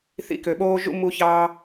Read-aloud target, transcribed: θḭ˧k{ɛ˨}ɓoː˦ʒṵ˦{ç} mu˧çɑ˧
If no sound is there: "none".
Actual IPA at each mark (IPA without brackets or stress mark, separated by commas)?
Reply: ø˨, none